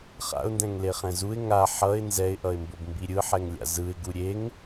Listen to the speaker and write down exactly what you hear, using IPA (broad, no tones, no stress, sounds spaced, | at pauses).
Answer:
χ a̰ ʊ̯ n d ɛ̃ ŋ l e χ ɛ̃ z u ɪ̯ ŋ a ħ ʌ ɪ̯ n z ɛ ɪ̯ ʔ ʌ ɪ̯ m b o b m b i ɾʲ ɯ ħ ɛ ŋ lʲ a̰ z ɯ ɪ̯ ɡ u ɾʲ e ŋ